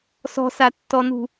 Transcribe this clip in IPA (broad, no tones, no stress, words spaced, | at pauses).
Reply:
sɔ̤satːɔnṳ